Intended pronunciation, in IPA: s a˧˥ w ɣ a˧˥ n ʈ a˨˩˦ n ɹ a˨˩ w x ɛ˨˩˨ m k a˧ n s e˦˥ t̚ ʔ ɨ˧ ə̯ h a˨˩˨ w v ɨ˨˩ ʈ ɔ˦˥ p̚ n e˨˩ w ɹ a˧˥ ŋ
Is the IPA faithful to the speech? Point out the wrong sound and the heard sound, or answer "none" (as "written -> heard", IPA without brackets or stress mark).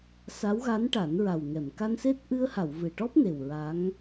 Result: x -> ŋ